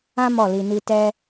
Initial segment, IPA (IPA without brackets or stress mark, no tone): ã